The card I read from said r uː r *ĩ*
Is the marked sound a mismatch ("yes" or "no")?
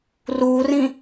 no